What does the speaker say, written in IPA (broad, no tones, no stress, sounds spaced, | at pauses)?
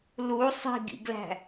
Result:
l u sˤ i̤ ɡ ḭ ɡ l æ̤